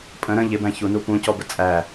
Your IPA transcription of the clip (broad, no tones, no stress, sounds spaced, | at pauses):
pʼ ə̃ ɾ ə̃ ʎ ɪ b æ̃ ç u n u p ũ c ɔ b ə t͡sʼ æ